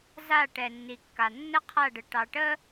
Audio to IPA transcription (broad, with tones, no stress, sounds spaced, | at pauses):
z a˦˨ ʈ ɛ˨ nː i˨ kː a˨ nː ə˦ qʰ a˦˨ ɖ ə˨ ʈ ɑ˨ ʈ ə˦